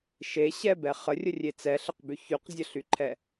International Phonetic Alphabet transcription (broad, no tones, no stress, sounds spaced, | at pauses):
ʃ e ɕ ɛ b ɛ χ ə rʲ ə rʲ e t͡s ɛ ɬ ə q b y ç y q zʲ ə ɬ y ǃʰ ɛ